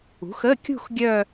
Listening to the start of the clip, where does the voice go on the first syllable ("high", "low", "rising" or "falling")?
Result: rising